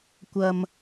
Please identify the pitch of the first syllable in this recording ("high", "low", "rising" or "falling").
low